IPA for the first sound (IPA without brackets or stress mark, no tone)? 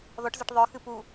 ð